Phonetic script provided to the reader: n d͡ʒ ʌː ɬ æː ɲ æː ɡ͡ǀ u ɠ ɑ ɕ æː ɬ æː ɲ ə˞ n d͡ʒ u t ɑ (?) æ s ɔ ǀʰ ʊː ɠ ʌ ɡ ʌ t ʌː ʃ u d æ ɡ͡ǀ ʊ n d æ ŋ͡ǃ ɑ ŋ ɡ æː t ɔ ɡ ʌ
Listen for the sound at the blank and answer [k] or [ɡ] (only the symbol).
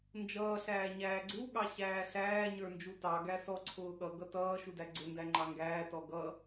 ɡ